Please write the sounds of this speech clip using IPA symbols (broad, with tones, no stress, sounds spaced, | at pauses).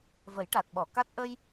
v ə˨˩˦ j ʈ a˨˩ t̚ ɓ ɔ˨˩˨ k a˦˥ t̚ ʔ ə˧ j